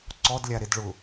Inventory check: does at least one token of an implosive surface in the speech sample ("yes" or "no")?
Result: no